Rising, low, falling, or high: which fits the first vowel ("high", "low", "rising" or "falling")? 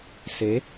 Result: rising